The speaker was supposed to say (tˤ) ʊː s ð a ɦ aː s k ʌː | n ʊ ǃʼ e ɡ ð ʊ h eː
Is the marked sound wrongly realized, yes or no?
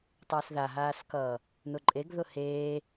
no